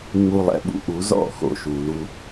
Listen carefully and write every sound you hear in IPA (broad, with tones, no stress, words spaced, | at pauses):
ŋ͡mu˧lˠɛ̰˧ɓṵ˧ʔu˨˦ zɔ̰˦˨xo̰˨ʃu˨ lu˧